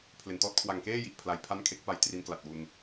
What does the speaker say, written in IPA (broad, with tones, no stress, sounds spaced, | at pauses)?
pʰ l e˩˦ n t ɔː˦˥ t̚ kʰ w a˨˩ ŋ k eː˥˩ j i˨˩ ʔ pʰ l a˧ j pʰ a˥˩ n kʰ e˦˥ k̚ p a˦˥ j t r i˦˥ n k l a˨˩ t̚ w u˧ n